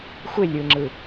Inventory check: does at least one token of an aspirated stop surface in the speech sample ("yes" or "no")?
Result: no